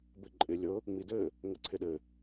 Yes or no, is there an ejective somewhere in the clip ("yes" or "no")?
yes